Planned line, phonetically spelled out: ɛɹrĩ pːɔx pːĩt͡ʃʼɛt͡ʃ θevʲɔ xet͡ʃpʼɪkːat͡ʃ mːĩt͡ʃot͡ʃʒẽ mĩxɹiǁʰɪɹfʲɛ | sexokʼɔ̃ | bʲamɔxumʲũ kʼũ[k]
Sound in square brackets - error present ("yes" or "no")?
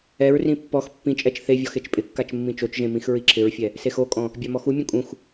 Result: yes